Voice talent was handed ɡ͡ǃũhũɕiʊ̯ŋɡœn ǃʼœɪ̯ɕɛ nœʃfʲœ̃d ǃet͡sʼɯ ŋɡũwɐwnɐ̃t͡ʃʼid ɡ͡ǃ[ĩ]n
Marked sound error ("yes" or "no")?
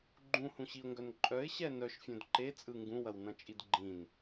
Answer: no